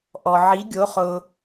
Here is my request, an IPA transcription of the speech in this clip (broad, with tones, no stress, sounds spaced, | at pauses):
ʔ ɔ˧ ʕ i˧˥ ɡʲ o˧˥ χ ʊ˧